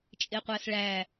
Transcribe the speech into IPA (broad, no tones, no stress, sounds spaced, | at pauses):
t͡ʃʼ e qʷ æ s ɭ æ